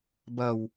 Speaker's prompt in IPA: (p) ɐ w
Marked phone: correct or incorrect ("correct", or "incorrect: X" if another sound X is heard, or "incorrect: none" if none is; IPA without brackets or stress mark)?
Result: incorrect: b